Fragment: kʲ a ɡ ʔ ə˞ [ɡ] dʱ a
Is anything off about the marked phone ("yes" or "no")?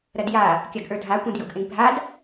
yes